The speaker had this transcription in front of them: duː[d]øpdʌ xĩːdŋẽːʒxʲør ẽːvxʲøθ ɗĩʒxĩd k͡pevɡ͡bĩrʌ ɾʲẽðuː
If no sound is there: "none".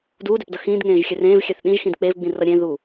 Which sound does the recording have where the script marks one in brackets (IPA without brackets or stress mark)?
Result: d